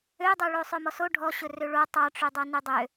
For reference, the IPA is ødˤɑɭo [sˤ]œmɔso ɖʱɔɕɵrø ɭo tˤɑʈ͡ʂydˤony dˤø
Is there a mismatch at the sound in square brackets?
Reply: no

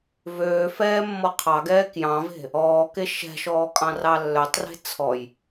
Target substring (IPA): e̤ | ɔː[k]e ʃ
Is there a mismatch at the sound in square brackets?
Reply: no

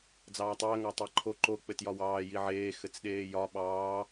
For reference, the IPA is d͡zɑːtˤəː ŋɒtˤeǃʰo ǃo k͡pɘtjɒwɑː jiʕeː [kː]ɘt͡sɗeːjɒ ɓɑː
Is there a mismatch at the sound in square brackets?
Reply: yes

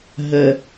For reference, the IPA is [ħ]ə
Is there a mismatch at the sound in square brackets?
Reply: yes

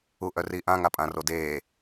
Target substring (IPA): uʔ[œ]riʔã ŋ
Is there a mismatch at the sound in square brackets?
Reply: no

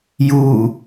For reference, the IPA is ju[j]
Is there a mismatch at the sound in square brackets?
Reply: yes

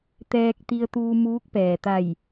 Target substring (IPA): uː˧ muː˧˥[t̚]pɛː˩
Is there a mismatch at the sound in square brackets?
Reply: yes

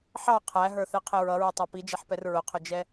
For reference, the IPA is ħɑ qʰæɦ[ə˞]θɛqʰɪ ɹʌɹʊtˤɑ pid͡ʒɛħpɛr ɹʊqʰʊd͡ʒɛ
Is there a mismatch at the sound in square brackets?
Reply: no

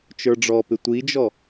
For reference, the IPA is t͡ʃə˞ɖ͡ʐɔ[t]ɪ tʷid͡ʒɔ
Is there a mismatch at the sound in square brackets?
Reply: yes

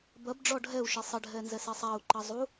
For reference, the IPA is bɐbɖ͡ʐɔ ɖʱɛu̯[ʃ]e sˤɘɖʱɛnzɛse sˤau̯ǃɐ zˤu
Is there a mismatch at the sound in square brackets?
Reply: no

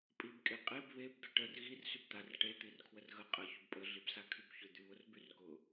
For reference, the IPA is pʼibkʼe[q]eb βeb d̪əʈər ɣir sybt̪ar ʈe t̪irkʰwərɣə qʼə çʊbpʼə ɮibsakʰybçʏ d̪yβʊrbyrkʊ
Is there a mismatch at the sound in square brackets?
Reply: yes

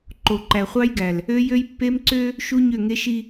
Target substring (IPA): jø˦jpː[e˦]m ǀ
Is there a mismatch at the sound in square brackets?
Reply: no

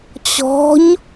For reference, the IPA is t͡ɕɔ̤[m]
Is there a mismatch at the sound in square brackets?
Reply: yes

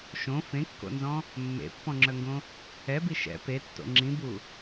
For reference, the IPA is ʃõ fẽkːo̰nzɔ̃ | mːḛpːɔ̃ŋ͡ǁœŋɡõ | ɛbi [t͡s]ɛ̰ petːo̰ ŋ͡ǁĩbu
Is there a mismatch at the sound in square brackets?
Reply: yes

